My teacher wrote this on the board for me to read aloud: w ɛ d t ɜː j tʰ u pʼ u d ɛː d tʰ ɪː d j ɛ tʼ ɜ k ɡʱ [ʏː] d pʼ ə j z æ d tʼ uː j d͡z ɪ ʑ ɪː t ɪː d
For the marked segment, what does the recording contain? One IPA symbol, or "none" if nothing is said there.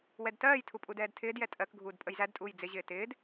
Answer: uː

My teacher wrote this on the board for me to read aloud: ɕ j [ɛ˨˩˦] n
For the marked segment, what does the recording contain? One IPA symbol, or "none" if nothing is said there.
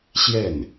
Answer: ɛ˥˩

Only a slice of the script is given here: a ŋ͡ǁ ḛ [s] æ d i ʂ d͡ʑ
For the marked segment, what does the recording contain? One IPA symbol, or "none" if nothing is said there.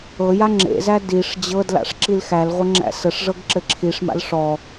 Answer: z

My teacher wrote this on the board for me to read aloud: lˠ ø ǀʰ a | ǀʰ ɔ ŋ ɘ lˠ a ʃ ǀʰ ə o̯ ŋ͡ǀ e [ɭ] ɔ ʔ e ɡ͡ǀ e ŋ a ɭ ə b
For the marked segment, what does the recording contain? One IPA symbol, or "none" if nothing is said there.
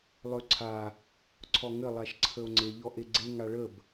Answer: ʎ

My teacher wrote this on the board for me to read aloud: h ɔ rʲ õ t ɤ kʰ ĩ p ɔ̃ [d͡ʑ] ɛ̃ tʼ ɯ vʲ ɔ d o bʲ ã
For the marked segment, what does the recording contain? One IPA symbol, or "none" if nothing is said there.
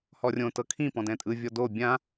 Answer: d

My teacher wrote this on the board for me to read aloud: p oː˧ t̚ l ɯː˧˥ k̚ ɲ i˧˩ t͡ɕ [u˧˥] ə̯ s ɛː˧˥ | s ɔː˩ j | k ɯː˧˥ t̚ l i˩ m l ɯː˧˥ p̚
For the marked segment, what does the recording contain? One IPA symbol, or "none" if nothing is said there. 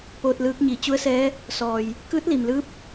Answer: u˧˥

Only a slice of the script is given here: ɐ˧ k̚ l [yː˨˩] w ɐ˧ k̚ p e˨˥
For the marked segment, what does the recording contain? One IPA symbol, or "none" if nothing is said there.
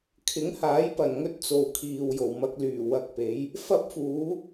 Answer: yː˨˩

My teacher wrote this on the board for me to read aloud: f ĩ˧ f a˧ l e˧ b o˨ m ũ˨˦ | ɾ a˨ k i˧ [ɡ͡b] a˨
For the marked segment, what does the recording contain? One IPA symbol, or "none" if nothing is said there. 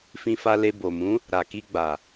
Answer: ɡ͡b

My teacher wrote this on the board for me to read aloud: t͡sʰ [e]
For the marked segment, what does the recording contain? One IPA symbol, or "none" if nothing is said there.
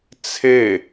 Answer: e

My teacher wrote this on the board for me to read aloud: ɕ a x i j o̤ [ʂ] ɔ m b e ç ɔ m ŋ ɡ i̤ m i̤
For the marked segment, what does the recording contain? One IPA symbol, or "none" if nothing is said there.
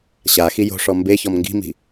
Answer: ʂ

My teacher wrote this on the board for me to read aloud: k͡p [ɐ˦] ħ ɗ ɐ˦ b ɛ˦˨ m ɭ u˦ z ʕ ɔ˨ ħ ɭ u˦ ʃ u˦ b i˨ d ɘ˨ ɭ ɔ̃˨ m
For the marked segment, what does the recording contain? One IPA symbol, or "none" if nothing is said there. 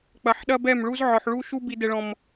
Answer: ɐ˨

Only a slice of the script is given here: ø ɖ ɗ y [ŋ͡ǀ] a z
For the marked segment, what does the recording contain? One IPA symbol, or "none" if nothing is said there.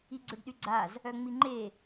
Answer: ɡ͡ǀ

